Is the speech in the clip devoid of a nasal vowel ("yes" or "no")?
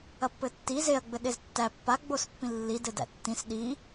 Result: no